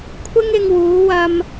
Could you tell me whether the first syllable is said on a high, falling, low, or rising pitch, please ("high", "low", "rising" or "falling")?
high